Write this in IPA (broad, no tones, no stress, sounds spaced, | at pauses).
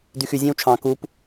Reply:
d y x y zʲ æ̃ w t͡ʃʰ ɑ̃ k u p